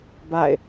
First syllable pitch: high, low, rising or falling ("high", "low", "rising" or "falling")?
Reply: falling